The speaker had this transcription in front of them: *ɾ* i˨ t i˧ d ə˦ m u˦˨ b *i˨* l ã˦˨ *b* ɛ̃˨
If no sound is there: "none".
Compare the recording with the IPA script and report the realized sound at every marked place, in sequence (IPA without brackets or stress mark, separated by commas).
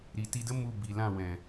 ɾ, i˨, w